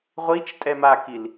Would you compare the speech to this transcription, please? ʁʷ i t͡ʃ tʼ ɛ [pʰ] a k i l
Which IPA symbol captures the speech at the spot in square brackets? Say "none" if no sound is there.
m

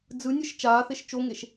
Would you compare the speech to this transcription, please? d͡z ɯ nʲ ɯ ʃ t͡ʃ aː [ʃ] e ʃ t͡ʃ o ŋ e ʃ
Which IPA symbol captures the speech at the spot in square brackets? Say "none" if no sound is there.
θ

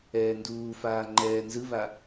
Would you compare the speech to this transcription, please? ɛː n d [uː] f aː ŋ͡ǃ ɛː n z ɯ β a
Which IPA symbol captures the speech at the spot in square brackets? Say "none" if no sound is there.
uː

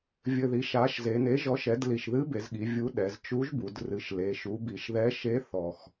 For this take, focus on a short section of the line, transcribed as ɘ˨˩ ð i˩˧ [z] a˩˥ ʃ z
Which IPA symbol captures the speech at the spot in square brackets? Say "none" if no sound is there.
ʃ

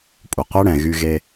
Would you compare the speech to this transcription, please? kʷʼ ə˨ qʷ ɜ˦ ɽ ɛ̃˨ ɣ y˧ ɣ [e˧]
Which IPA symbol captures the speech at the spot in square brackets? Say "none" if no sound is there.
e˧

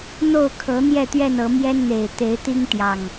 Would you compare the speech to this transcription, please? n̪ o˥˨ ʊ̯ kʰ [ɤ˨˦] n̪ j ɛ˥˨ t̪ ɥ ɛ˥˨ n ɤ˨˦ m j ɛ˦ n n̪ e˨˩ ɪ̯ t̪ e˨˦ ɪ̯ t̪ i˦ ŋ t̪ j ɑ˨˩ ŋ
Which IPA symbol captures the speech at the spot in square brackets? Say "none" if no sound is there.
ɤ˨˦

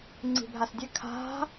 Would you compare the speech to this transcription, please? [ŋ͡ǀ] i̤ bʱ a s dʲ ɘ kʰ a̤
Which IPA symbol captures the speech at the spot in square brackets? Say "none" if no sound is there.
ŋ͡ǀ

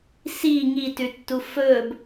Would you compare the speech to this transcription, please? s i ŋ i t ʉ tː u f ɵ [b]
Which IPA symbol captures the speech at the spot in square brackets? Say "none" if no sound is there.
b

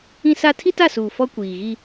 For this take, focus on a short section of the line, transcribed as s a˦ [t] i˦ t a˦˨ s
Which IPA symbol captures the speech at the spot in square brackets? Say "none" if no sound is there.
tʰ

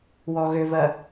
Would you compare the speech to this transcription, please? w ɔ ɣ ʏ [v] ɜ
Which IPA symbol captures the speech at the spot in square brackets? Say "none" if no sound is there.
v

